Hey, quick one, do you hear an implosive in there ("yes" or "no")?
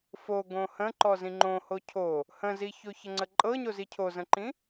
no